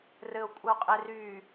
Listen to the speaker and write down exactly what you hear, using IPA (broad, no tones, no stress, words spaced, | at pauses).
rɘo̯kʷʼəo̯qʼe ry